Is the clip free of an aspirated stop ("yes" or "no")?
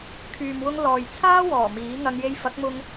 no